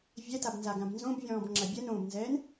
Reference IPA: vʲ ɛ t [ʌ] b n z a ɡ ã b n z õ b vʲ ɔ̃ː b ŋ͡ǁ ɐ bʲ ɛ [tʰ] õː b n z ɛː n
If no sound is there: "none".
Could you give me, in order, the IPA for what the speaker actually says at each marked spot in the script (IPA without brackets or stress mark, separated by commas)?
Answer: a, n